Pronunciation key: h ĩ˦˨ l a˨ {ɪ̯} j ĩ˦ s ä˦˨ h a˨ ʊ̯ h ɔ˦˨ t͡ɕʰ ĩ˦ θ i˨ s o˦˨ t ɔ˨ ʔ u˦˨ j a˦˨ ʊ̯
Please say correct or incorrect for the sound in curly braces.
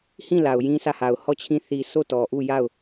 incorrect